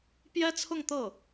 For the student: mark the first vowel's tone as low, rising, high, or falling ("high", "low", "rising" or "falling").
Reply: high